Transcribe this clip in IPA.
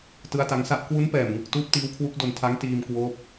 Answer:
t ɯ˦˥ a̯ t a˦˥ ŋ s a˥˩ ʔ k w u˦˥ n p ɛː˨˩ m ŋ ɯ˨˩ k̚ t uː˦˥ p̚ t iː˦˥ w kʰ w u˦˥ k̚ d o˧ n tʰ a˦˥ ŋ t iː˧ m k w oː˦˥ p̚

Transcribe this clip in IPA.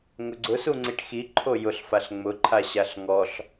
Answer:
ŋ ʊ ɡ͡ǀ ʊ s u ŋ͡ǀ i ʈ x i ǃʰ o j ʊ ɬ f a ɬ ŋ͡m ʊ ǃʰ a ɕ a ɬ ŋ ɔ ɬ

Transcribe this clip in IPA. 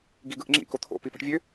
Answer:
ɡ i ɡ ɯ ʔ ŋ͡ǁ ḭ k o t̪ʰ o̰ p i p ɑ̤ ʈ vʲ ø

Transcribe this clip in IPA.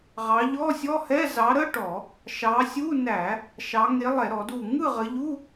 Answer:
ʁ ɑ˨˦ ʎ ɔ˧˥˧ sʲ ɔ˧˥˧ h ɛ˧˥˧ z ɑ˨˦ ɾ ə˧˥˧ ʈ ɔ˧˩˧ | ʃ ɑ˨˦ sʲ u˧˥˧ n æ˧˩˧ | ʃ ɑ˨˦ ŋ e˨˦ lˠ ɛ˧˩˧ ɾ ɔ˧˩˧ d u˧˩ ŋ ɯ˥˨ ʁ ə˨˦ ʎ u˧˥˧

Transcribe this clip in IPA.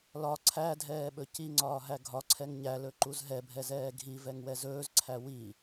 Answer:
l ɒ ǀʰ æ dʱ ɛː ɓ ɵ c i ŋ͡ǀ ɒː ɦ æ ɡʱ ɒ ǀʰ ɛ ŋ ɲ æ l ɵ ǃ u z ɦ ɛ bʱ ɛ z ɛː ɡʱ i v ɛ ŋ w ɛ z ɵː z ǀʰ æ w i

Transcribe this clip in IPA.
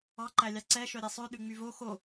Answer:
ɑ ǃ æ lʲ ɑ ǀ ɛ ʃ œ ɾʲ e sˤ ø ɗ ʉ ŋ͡m y v o x o

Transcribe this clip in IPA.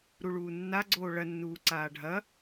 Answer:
ɾ u ɭ uː nː a ɡ͡ǀ oː ɭ ɐ nː uː ǀ aː ɖʱ ɐ

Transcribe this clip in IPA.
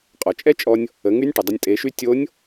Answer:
qʼ ɔ˩ t͡ʃʼ ɛ˥ t͡ʃʼ ɔ˧ nʲ | ə˩˧ ŋ y˧˥ nʲ ʈ ə˩ dˤ ə˧ nʲ tʼ e˩˧ ʃ y˧ tʲ o˧˥ nʲ

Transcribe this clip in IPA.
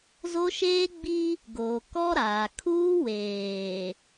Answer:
z o˦ ʃ eː˦ ɡ͡b i˦ | ɡ oː˨ k ɔ˦ ɾ aː˨ kʰ uː˦ w eː˨

